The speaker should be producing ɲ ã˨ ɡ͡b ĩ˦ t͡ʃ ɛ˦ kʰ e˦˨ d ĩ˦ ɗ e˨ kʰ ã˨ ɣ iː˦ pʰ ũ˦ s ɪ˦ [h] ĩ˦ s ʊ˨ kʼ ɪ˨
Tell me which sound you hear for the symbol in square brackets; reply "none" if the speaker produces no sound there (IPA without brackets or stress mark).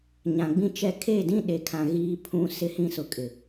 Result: h